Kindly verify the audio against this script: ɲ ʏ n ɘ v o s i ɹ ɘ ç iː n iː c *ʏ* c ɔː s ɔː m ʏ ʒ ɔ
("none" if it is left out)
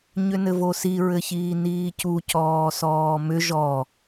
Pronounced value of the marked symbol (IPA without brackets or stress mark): u